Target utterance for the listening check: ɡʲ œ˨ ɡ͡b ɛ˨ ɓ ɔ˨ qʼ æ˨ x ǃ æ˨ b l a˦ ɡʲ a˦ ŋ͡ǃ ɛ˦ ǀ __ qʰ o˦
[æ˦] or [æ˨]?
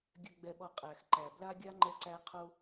æ˦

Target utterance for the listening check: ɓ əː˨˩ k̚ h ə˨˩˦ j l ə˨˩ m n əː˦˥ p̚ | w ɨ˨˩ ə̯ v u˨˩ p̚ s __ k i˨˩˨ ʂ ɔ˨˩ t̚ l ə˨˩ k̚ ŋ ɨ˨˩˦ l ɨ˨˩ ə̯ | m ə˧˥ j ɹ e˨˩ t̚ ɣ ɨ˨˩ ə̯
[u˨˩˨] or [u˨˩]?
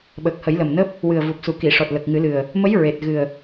u˨˩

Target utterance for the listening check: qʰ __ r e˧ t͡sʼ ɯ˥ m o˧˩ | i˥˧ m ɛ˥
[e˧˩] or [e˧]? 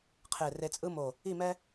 e˧˩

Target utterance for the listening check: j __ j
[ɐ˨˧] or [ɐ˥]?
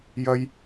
ɐ˥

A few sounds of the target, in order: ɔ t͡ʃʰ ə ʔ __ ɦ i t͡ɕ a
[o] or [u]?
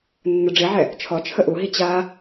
u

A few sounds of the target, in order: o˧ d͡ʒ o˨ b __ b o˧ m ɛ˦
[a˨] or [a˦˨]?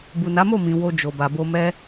a˨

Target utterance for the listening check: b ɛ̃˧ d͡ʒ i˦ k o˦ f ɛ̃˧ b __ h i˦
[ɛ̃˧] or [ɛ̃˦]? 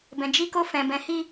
ɛ̃˧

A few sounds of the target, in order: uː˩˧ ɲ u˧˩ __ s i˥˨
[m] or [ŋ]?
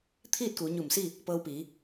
m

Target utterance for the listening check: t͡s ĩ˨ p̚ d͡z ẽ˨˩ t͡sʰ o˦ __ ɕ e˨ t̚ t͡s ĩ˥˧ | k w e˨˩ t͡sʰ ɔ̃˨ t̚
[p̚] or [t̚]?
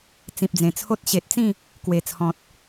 t̚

